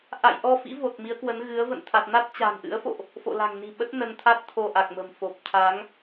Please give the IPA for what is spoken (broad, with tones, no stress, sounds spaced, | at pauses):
ʔ a̰˧˨ j ʔ ɔ˧ f ḭ˧˥ v o˨˩ t̚ m i˨˦ ə̯ k w ə˨˦ n ɣ ɨ˨˦ ə̯ v ə̰˧˨ n t̪ʰ a˨˩ t̚ n a˦˥ t̚ t͡ɕ a̤˨˩ n ʔ ɨ̰˧˥ ə̯ f o̰˧˨ ʔ | f o̰˧˨ l a̤˨˩ ŋ n i̤˨˩ ɓ ə˦˥ t̚ n ə˧ n t̪ʰ a˦˥ t̚ t̪ʰ o˧ ʔ a˨˩ k̚ m ə̤˨˩ m f o˨˩ p̚ t̪ʰ a˨˦ ŋ